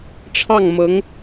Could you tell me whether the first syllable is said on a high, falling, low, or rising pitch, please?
falling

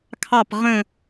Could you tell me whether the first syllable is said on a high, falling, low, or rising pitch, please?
falling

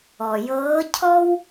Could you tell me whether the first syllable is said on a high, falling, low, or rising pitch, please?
low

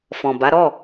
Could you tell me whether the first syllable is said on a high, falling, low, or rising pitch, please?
low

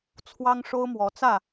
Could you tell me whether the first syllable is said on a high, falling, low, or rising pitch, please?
high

